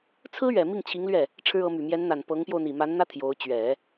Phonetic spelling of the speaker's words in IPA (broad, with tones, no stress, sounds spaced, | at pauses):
t͡sʰ ɹ̩˥ ɥ ɛ˨˩ m i˥˩ ŋ t͡ɕʰ i˧˥ ŋ l ɥ ɛ˥˩ | ʈ͡ʂʰ ɻ̩˥ ɤ˧˥ m y˨˩ m j ɛ˧˥ n n̪ a˨˩ n p ɤ˧˥ ŋ p j o˧ ʊ̯ n̪ i˨˩ m a˧˥ n n̪ ä˥ t̪ʰ j o˧˥ ʊ̯ t͡ɕ ɥ ɛ˨˩˦